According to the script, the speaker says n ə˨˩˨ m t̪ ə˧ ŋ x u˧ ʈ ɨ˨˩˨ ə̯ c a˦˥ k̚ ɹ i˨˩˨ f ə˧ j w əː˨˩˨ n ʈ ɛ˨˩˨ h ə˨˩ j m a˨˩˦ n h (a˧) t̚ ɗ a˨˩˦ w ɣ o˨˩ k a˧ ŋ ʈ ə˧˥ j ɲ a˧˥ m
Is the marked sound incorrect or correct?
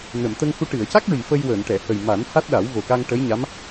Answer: incorrect